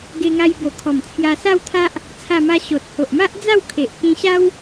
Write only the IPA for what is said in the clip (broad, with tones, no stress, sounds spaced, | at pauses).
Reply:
ɡ e˧ ŋ a˧ j b o˨˩ kʰ ɔ˨˩ m t͡sʰ j a˧ s a˥˧ w t̪ʰ a˦ ʔ | t͡sʰ a˥˧ m a˦ ɕ o˨ t̚ h o˨ ʔ m a˦ ʔ d͡z a˥˧ w kʰ e˨ ʔ k ĩ˧ ɕ a˦ w